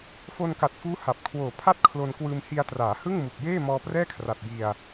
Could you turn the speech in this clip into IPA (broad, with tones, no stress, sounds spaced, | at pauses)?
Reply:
f o˧ n k a˨˩ t̚ f uː˦˥ h a˨˩ p̚ kʰ w oː˨˩ pʰ a˥˩ t̚ kʰ l o˧ n k w ɯː˧ m h i˧ a̯ t r aː˩˦ h ɯ˥˩ ŋ m u˨˩ k̚ j eː˥˩ m ɔː˧ p r ɛː˥˩ kʰ r a˨˩ t̚ j i˧ a̯